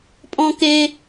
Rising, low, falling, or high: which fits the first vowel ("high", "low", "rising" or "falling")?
high